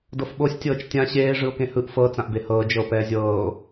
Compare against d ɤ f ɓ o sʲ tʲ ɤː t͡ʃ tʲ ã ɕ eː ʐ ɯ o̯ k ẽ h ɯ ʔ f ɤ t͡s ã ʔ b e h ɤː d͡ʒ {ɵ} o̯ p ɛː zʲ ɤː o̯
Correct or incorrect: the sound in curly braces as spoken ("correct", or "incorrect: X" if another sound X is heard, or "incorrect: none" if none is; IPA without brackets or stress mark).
incorrect: ɤ